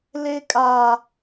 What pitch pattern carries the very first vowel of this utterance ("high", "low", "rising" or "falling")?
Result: high